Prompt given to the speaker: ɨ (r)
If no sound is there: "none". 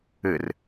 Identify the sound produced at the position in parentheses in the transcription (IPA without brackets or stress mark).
r